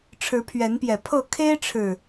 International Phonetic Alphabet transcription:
ʈ͡ʂʰ ɻ̩˨˦ pʰ ɥ ɛ˨˦ n p j ɛ˨˩ pʰ ɤ˥˨ kʰ e˦ ɪ̯ ʈ͡ʂʰ ɻ̩˨˩

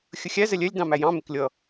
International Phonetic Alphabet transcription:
xʲ ə xʲ æ z ɛ lʲ ɛ lʲ d ɑ̃ m æ j ɑ̃ m ɪ k lʲ ʌ

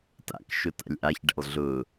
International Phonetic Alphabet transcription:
t a̰ k ʃ ʊ t a̰ lʲ ʔ a ç ɖ ɛ̰ lˠ ɮ ʊ

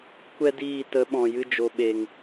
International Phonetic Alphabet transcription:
kʷ ɛ˦ d iː˦˨ t ə˨˦ ɓ ɔ̃˨ j ɨ˧ d͡ʒ o˨ ɓ e˨ ŋ

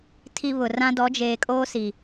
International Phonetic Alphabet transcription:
tʰ i˨ β ʊ˨ r ã˦ d ɔ˨˦ d͡ʒ eː˨ kʼ oː˦ s i˨

